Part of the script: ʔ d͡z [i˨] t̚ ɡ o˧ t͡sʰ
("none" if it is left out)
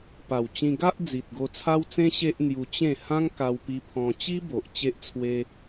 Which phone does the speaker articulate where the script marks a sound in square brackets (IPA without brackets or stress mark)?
i˨